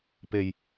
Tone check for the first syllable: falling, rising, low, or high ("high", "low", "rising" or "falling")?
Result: low